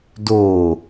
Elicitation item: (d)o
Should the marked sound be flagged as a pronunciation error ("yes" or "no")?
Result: no